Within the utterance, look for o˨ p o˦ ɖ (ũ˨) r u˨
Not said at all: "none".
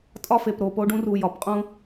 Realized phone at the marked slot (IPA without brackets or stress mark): ũ˦